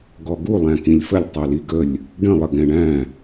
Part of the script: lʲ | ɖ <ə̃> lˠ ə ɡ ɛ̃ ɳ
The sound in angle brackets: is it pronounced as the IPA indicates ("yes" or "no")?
yes